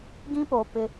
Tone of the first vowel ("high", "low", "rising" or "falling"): high